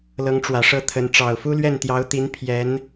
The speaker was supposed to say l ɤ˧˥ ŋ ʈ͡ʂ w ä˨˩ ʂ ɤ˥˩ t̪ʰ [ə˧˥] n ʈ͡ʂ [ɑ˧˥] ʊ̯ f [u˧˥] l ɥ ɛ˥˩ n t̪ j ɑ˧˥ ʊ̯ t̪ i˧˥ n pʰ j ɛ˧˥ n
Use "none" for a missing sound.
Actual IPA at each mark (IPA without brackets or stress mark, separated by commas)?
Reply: ə˧˥, ɑ˨˩, u˥